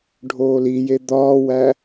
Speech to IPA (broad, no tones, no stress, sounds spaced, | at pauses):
ɖʱ oː l i j e d̪ ɒː w æ